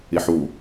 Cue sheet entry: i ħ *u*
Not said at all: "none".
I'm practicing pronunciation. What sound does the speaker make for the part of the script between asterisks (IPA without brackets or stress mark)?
u